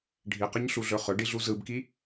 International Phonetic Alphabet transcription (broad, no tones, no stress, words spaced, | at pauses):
ɖʱiqəɲɬuɮɵ χɵɖiɮu zɯbki